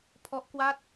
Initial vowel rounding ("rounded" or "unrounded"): rounded